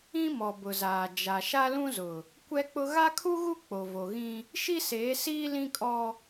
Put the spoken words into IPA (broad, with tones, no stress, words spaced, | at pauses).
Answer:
ĩ˦mɔ˨ bʊ˨zaː˨ d͡ʒa˨ʃa˦ lũ˦zʊ˨ | kʷɛ˦k͡pʊ˦ ɣa˦kʰu˦ɣu˦ k͡po˨vo˨ɣĩ˦ | ʃi˦seː˨˦siː˦ lĩ˦kʼɔ˦